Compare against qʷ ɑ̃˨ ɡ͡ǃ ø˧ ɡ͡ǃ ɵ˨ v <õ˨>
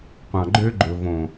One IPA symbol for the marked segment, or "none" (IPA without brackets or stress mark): õ˨